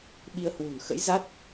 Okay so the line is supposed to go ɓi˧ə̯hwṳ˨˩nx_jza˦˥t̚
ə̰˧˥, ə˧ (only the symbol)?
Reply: ə̰˧˥